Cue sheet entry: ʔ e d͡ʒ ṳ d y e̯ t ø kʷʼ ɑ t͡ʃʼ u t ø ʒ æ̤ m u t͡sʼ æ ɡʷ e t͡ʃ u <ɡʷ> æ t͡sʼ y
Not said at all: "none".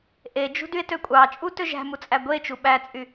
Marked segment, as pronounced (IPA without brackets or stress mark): ɓ